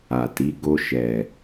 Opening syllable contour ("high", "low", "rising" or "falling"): low